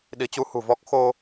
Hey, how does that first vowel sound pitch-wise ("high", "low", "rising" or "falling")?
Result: rising